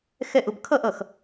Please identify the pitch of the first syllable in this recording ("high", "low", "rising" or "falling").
falling